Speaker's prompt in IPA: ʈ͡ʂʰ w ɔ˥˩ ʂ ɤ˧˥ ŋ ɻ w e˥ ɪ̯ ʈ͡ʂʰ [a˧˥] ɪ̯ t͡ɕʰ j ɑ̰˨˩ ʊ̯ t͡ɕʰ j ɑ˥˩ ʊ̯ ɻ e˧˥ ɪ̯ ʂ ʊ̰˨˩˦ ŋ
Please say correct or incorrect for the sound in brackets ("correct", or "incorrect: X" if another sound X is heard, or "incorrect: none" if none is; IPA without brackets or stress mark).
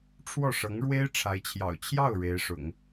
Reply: correct